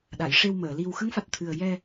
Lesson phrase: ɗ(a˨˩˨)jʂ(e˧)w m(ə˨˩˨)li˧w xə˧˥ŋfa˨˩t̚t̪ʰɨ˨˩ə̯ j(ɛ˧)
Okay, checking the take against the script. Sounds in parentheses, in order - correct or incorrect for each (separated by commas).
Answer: correct, correct, incorrect, correct